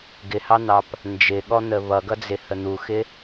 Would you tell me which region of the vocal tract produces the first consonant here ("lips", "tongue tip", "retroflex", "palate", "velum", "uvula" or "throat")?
velum